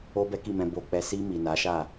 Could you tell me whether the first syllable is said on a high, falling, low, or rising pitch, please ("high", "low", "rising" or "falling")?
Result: high